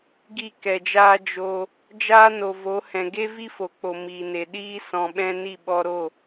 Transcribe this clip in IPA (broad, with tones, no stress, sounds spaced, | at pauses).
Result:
ɡ i˦˨ k ɛ˨ d͡ʒ aː˦ d͡ʒ o˧ | d͡ʒ aː˦ n o˨ v o˨˦ h ɛ̃˨ ɡ e˦ v i˦ f o˨ k͡p o˨ m iː˨ n e˨ ɗ iː˦ s ɔ̃˧ ɓ ɛ̃˦ n i˦˨ ɓ ɔ˧ ɾ o˦˨